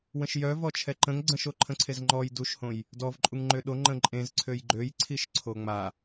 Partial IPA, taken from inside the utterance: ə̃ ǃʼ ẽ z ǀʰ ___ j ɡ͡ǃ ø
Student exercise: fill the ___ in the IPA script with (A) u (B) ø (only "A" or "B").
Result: B